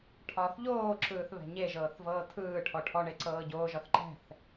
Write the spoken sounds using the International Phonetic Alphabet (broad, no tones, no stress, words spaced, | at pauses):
ʈʰɒːθʎoːǁɯːθ βɛ̤ɲeʒɤːθ vɤːtʰɯːʈʰɔ ʈʰɔɳe ǀɤːɟoːʒɒθ ǃɛ̤θ